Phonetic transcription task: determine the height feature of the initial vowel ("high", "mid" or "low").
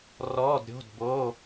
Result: mid